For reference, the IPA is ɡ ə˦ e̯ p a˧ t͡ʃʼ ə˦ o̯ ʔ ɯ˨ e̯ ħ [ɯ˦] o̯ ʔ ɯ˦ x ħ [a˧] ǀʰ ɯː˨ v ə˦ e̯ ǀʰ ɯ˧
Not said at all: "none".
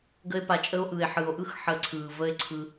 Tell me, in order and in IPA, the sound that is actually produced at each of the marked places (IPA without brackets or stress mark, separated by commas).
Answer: ɯ˨, ə˧